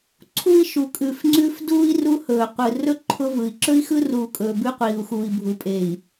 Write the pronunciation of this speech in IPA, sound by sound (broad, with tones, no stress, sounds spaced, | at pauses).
ǀʰ u˦ i̯ ʃ u˨ kʼ ʉ˨ f ŋ͡ǀ ʉ˦ f d uː˦ i̯ r u˦ h ɵː˨ qʷ ɯ˨ r ɵ˦ ǃʰ ʊ˦ v ɯ˨ i̯ ǁ ɵ˦ i̯ x ɯ˦ r uː˨ kʼ ɵː˨ b ʉ˦ qʷ iː˨ u̯ x uː˨ i̯ bʱ u˨ pʼ e˨ i̯